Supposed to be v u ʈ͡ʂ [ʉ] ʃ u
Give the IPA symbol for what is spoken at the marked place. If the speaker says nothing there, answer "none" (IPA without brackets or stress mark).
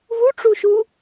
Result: u